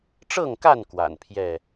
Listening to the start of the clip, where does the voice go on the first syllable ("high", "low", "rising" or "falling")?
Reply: falling